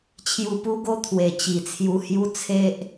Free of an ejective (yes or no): yes